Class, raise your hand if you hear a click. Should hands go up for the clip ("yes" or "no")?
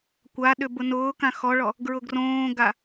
no